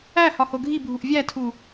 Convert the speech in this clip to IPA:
æ h ɒ h o ɡʱ i bʱ u ʔ vʲ æ tʰ u

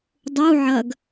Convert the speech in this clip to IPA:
dˤ u ʕ ɐ ɡ

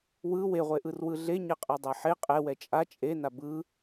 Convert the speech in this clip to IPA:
w ɯ w e ʁʷ e ʔ ɯ r w ɯ ɮ e ɲ ɛ qʼ a dˤ a ħ e qʼ ɛ w ɛ t͡ʃʼ a t͡ʃʼ e n a b ɯ

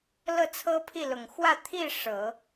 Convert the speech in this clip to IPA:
l ɤ˥˩ t͡sʰ ɤ˥ pʰ i˥˩ l ʊ˨˩ ŋ x w ä˥˧ t̪ʰ i˥˩ ʂ ɤ˨˩˦

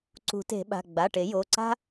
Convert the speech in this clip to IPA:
ǀ ṳ˨˩˦ t e̤˨˩˦ ɓ a̤˩˧˩ ɡ͡b a˩˧˩ ʈ e˨˩˦ j o˩˧˩ ǀ a̤˥

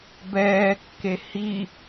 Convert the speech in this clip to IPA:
b ɛː kː e h i

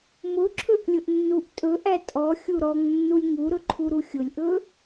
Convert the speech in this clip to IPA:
m ʊ ǁʰ ɵ ʔ lʲ ʊ ʔ nː u ʔ tʼ ɵ ʔ æ tʼ ɔ xʲ u ɾ ɔ ŋ nː u lʲ ŋ u ɾ ɵ ǃʰ u ɾ u xʲ ʊ lʲ ʔ ɵ

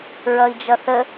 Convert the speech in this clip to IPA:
ɹ ʌ i̯ d͡ʒ ʌ θ ə

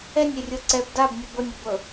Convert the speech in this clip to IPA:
ɛ nʲ e rʲ ɤ ǀ ɛ b d a b nʲ ɤ b ɤ nʲ ɤ b ɤ

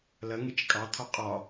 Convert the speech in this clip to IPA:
l ɐ ŋ e t͡ʃ kʼ ɑ t̪ʰ ɒ qʼ ɒ

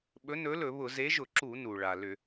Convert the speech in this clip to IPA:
ɓ ɵ˨˥ n ɵ˨˥ l ɵ˧˩˧ β ʊ˧˩˧ z e˨˥ ʒ ʊ˧˩˧ ǁ u˧˩˧ n u˩ ɭ a˩ l ʏ˧˩˧

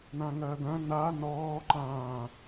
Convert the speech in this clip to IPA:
n ã ŋ ɐː d̪ ɐ̃ n a n ɔː ǃ ãː

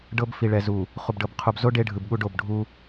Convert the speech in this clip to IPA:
ɖ ɤ˦ b f i˨ ɭ ɛ˨ z u˨ | χ u˨ b ɖ ɤ˨ b qʰ u˨ b z o˦ ɖ e˦ ɖʱ ɯ˨ b ɠ u˦ ɖ o˦˨ b ɖʱ u˦

